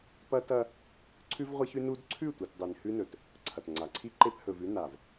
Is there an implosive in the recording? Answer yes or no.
no